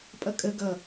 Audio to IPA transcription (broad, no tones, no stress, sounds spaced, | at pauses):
pʼ ʌ kʼ ə ɡ ʌ